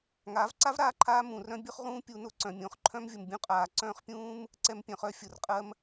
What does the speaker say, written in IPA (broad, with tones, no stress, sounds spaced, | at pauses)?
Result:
ŋ aː˨˦ v ǀ a˦ v ɾ aː˨˦ ǃʰ aː˧ m ũ˨ r œ̃˦ bʲ ʊ˦ χ ʁ ũː˦ pʲ u˧ n ʊ˦ ǀ œ̃˨ mʲ õ˨˦ χ ǃʰ œ̃˦ m vʲ ʊ˨ m bʲ ũ˦ qʼ aː˨ ǀ œ̃ː˦ χ pʲ ũː˦ m | ǀ ɛ˧ m pʲ œ̃˨ χ œ˧ fʲ ʊ˨ r qʼ ɜ˦ m